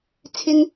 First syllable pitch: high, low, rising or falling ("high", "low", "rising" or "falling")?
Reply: high